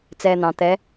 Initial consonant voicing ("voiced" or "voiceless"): voiceless